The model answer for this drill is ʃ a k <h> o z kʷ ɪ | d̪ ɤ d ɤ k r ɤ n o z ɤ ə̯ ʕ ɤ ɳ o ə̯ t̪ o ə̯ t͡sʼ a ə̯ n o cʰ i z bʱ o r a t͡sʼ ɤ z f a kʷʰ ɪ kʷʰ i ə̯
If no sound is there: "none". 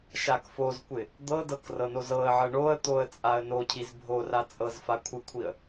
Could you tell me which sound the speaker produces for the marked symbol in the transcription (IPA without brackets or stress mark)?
f